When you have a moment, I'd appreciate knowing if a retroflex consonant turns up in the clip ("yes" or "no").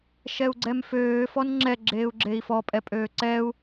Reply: no